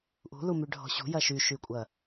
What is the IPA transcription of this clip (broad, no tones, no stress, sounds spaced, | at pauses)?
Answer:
ʔ ṳ l u m y ɖʱ ɔ̤ ɕ ṳ j ɐ ʃ y ʃ y kʷʼ ɐ